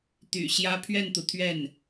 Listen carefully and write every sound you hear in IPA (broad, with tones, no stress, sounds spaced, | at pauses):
t̪ y̰˨˩ ɕ j ä˥ pʰ ɥ ɛ˥˩ n t̪ u˩ t̪ʰ ɥ ɛ˥˩ n